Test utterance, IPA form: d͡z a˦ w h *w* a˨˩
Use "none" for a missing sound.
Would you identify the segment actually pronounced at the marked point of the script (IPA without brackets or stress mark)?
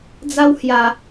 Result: j